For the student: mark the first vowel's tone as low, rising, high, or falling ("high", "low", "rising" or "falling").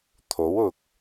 rising